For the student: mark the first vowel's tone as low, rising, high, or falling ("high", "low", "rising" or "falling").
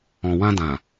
low